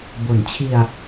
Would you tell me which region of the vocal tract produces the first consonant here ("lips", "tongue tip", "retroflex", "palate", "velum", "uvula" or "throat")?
lips